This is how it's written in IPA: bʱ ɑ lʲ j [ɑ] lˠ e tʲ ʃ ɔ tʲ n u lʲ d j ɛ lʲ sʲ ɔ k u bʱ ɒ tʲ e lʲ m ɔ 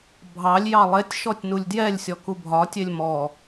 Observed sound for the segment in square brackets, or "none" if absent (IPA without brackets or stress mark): ɑ